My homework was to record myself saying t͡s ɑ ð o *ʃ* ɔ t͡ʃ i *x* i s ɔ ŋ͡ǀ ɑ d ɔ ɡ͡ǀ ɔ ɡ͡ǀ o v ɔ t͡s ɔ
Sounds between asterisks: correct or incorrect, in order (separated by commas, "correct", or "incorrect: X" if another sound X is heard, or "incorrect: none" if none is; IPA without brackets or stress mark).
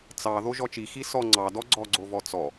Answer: incorrect: ʒ, correct